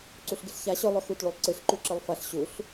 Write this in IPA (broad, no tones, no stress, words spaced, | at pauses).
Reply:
ǀuɬɡɨɬça ɕɵ lˠɵxut ɭulˠǀɨɬ ǃʉǁɨlˠfɐɬ ɕuɬ